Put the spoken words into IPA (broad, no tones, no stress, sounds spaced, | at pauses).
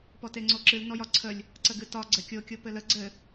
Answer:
p ɔ t e ŋ͡ǀ o ǁ ɨ l n ɔ j ɒ ǀʰ ə lʲ | ǀ ə ɡ ɨ t ɒ ɡ͡ǀ ɘ kʲ o kʲ o p ɘ l ə ɡ͡ǀ ɘ